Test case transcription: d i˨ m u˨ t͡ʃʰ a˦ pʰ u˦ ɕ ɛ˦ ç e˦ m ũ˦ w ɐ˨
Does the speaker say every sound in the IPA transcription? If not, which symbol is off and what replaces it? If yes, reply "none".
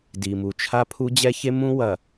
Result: ɕ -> d͡ʑ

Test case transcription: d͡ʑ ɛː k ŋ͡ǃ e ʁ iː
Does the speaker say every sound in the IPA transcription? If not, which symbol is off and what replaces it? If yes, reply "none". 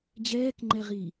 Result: e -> ɛ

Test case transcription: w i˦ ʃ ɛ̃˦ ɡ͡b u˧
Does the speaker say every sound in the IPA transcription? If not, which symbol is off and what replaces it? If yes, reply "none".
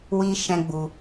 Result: none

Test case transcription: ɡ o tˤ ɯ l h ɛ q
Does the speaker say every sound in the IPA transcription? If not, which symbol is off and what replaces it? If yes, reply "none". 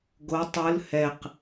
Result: none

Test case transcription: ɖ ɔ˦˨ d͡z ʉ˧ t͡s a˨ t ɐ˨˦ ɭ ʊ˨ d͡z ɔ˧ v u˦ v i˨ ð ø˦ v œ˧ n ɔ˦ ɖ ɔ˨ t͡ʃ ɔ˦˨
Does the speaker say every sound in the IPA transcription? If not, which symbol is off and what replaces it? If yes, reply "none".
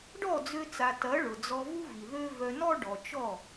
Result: ʉ˧ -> ø˧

